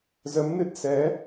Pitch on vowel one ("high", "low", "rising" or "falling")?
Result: rising